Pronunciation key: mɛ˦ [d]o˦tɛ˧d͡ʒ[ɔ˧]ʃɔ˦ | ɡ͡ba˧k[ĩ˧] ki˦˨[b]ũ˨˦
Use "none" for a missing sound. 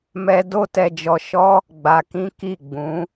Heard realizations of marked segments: d, ɔ˧, ĩ˦, ɡ͡b

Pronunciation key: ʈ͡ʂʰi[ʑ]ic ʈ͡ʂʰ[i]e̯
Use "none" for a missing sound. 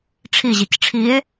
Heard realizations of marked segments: ʑ, i

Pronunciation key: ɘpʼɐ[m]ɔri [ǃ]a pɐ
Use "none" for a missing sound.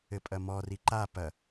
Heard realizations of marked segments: m, ǃ

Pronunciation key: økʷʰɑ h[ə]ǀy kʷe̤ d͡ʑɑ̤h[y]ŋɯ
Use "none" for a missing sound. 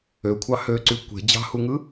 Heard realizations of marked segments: ø, u

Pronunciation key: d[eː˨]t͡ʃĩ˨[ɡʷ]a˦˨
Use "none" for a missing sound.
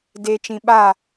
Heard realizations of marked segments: eː˨, ɓ

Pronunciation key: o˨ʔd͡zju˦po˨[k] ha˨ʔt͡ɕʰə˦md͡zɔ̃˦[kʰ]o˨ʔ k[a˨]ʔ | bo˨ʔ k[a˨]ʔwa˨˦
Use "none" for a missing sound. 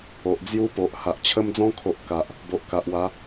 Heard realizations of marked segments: ʔ, kʰ, a˨, a˨

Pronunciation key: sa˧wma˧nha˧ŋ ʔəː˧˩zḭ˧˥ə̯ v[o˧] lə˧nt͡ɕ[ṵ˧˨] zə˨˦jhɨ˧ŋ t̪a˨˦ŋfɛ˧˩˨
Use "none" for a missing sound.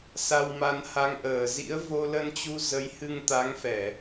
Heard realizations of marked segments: o˧, u˧

